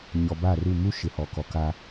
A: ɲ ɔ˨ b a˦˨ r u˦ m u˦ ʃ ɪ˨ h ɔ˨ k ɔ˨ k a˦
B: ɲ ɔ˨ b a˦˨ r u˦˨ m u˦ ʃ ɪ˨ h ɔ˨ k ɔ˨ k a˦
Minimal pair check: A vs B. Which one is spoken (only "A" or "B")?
B